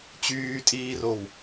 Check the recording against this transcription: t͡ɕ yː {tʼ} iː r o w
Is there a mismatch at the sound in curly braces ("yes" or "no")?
no